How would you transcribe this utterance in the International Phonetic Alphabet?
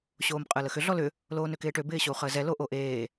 ɕ oː m qʼ əː l ə x ʏ ɮ ɔ l ʏ | l oː n ø k ɪː ʈ ø b ɪː ɕ o u̯ χ əː z ɛ l o ʔ o ʔ eː

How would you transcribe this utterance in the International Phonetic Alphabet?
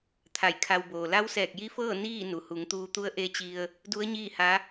t̪ʰ a˧˩ j kʰ a˧ w b oː˩ l a˧˥ w s ɛː˧˩ k̚ j i˧˥ f ɤː˥˨ n iː˥˨ n u˩ h u˩˧ ŋ t̪ uː˧ t̪ u˧˥ ə̯ ʔ e˧ t͡ɕ i˧ ə̯ | d u˧˥ ə̯ ɲ iː˥˨ h a˧˥

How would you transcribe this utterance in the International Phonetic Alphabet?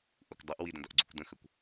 ʔ u kʷ dˤ ʌ ʔ w i d ə̃ d ʌ ʔ ɡ͡ǀ u kʷ d ə̃ x ə kʷ

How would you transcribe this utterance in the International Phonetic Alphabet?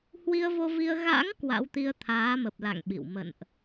h w i˧ ə̯ v o˧ v i˧ ə̯ ɣ a̰˧˥ ŋ k w a̰˧˥ w t̪ i˧ ə̯ t̪ʰ aː˨˦ m ə˨˩ p̚ l a̰˧˨ ŋ ɓ ḭ˧˨ w m ə̰˧˨ n ʔ

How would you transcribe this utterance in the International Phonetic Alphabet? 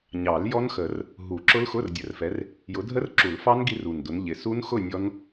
ɲ ɑ˨˩˦ l j ɔ˦˥ n x ə˨˩˦ r | ɦ u˨˩˦ ǁ ʊ˦˥ l x ʊ˧˥˧ r dʲ ə˨˦ r f ɛ˨˦ r | j ʊ˨˦ dʱ ə˦˥ r ǁ u˨˩˦ l f ɑ˦˥ n ɡ i˦˥ r u˨˩ n d ʊ˨˦ n ʎ ɪ˨˩ s u˦˥ n x ʊ˥˨ nʲ ɔ˦˥ n

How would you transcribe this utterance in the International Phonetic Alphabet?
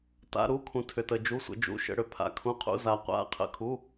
t a̰˩˧˩ ɾ u˩˧˩ kʰ ũ˩ tʰ ʏ˩ t ə˩ d͡ʒ u˩˧˩ sʷ ə̰˩ d͡ʒ ṵ˩˧˩ ʃ ə̰˩ ɽ ʏ˩ pʰ a̰˩ kʰ ũ˩˧˩ qʰ ṵ˩˧˩ z a˩ qʷ a̰˩˧˩ qʰ ə̰˩ kʰ u˩˧˩

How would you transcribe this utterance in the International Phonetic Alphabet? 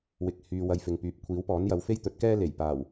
w ɪ˧ k̚ h yː˧ w ɐ˧ j f ɪ˨ ŋ p yː˨˥ p̚ kʷʰ iː˨˥ w p ɔː˨˥ n j ɐ˨˧ w f e˥ j t̪ ɵ˨˥ t̚ k ɛː˥ l e˨˩ j p aː˨˩ w

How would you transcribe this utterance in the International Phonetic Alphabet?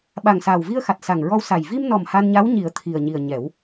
ɓ a˨˩ ŋ s aː˨˩ w v i˧ ə̯ x a˨˩ t̚ s a˨˩ ŋ ɹ ɔ˧ w s a˨˩ j v i˧ m n ɔ˨˩ m h a˧ n ɲ a˧˥ w ɲ i˨˩˦ ə̯ t̪ʰ i˨˩ ə̯ ɲ i˨˩ ə̯ ɲ ɛ˨˩˦ w

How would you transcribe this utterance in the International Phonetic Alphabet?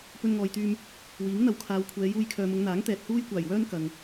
p ɵ˧ n ŋ ɔː˨ j t̪ yː˧ m | w iː˨˥ ŋ n̪ ɐ˨˥ w kʰ aː˨˧ w kʷʰ ɛː˨˧ j uː˧ j kʰ œː˨ m ʊ˨˧ ŋ n̪ aː˨˥ ŋ t̪ ɛː˨ t̚ h uː˥ j kʷ aː˨˩ j w œː˥ n k ɐ˨ ŋ

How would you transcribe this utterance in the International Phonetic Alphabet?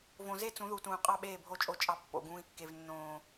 v õ˨ z e˦ t͡s ũ˨˦ ð u˨ t ũː˨ qʼ ɑ˦ ɓ eː˦˨ bʱ o˦˨ t͡ʃʼ o˦ t͡ʃʼ ɑ˦ pː o̰˦˨ ɡ ũː˦ i̯ kː e˦ v nː õː˦

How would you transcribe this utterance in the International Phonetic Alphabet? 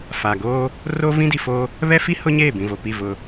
f aː˨ ɡ oː˦ | r oː˦ v ĩ˦ d i˨ f oː˦ | β ɛ˦ f i˦ h ʊ˦ ɲ eː˦˨ b ĩ˨ v o˨ p i˦˨ v ʊ˦

